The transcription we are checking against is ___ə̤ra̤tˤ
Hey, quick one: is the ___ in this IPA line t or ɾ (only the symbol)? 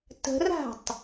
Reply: t